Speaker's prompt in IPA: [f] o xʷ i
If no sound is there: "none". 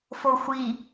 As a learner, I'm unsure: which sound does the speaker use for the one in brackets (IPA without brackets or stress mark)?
f